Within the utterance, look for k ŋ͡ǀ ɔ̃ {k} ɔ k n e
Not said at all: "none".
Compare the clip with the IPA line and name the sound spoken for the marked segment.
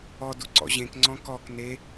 k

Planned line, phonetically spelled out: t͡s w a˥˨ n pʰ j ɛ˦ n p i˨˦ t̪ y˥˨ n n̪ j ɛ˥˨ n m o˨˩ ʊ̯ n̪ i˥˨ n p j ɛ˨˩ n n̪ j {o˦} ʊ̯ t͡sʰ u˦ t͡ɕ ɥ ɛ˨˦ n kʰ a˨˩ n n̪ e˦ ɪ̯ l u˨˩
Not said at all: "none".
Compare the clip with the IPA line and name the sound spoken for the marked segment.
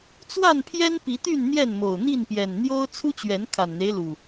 o˦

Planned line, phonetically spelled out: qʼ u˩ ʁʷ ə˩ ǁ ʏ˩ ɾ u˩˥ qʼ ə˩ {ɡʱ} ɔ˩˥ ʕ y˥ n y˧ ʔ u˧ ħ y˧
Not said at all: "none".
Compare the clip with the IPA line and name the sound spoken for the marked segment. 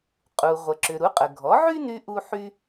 ɡʱ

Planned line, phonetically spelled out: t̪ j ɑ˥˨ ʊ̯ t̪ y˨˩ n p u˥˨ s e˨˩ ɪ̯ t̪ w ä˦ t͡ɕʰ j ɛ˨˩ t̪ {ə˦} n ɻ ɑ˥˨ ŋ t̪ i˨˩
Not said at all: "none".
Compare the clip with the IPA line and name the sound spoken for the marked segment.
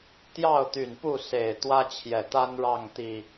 a˦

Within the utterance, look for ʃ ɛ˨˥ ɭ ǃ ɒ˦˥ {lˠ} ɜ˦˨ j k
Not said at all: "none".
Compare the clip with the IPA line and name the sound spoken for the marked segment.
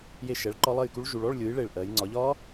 lˠ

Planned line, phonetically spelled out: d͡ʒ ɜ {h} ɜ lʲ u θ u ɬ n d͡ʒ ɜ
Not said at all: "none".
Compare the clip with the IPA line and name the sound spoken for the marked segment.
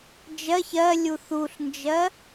ç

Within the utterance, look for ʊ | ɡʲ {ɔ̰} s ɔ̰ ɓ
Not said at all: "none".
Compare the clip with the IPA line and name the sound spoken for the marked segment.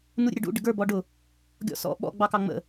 ɔ̰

